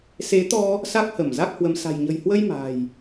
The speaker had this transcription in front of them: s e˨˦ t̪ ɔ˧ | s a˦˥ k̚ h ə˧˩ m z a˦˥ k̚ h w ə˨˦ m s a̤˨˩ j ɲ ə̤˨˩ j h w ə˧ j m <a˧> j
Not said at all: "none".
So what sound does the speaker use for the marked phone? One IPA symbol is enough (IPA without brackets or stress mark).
a̤˨˩